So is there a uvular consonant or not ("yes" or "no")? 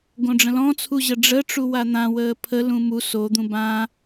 no